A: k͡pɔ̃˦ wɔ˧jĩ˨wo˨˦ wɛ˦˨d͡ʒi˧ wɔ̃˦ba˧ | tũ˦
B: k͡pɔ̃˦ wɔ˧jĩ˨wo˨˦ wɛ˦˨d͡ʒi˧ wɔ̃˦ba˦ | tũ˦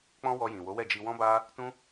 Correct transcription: B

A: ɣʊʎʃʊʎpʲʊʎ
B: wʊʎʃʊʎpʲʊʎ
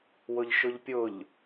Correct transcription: B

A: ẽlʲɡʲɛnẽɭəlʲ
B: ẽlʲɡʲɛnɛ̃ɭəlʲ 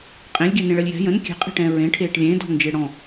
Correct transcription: A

